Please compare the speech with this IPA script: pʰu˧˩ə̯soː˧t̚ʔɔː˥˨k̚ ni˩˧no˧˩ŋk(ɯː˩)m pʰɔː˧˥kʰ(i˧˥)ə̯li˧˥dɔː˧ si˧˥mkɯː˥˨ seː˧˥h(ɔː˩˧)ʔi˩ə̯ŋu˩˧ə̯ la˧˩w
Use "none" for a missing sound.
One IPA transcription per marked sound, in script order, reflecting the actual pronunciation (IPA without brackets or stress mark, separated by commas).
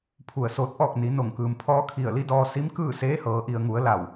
ɯː˩, i˧˩, ɤː˩˧